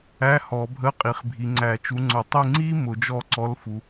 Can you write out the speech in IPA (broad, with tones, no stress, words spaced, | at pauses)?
æ˧˥˧hɔ˨˩˦ bʱə˧˥˧ qʼi˨χbʱi˨ŋ͡ǀæ˨˩˦ t͡ʃu˨˦ŋ͡ǀʊ˨˩˦tˤi˥˨ ŋ͡ǀi˥ mʊ˨˩˦d͡ʒɔ˥˨ǀɔ˧˥˧l fu˨